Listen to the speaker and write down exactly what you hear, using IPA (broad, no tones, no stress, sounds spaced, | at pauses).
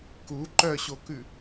k u ǃ œ ɕ o k ʉ